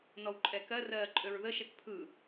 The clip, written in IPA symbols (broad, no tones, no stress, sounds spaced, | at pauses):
n ɔ w ǃʼ ɛ k ɜ r ɜː ǃʼ ø ɹ ð ə ʃ ɛ k pʰ ɯ